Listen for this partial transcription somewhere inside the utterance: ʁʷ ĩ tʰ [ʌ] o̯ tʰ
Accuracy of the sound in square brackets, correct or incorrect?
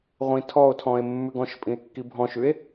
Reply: incorrect: ɔ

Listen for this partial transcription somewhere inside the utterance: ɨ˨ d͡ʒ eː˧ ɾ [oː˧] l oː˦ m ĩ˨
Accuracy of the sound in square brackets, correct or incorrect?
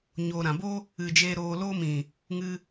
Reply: correct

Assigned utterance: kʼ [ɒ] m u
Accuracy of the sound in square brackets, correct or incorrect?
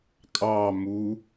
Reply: incorrect: ɑ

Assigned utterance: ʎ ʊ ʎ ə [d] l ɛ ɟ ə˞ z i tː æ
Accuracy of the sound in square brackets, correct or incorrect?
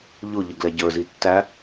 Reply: incorrect: ɡ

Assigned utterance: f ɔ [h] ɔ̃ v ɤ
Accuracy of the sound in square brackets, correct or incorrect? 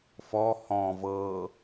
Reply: correct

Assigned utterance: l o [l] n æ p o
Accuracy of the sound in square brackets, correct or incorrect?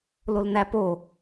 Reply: correct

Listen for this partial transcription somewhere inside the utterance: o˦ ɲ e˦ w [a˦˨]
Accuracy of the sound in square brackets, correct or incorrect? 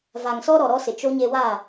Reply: correct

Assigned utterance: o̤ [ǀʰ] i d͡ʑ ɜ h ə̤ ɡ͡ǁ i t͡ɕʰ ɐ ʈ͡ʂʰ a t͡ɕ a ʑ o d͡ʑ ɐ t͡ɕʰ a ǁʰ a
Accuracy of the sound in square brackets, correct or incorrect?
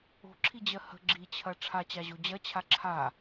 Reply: incorrect: ǁʰ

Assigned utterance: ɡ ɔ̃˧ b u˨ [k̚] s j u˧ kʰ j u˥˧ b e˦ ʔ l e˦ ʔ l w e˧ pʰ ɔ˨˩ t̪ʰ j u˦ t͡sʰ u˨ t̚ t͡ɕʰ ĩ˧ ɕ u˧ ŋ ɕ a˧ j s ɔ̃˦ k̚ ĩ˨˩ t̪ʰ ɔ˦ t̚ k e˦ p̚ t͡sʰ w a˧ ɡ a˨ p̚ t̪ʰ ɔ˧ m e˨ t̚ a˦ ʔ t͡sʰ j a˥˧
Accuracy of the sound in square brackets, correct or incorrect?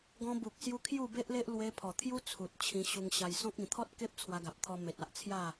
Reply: correct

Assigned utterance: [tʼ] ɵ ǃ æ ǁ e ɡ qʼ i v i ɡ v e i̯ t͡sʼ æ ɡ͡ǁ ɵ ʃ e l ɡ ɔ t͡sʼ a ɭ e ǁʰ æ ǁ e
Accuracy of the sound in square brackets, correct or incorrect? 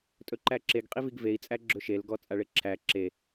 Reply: correct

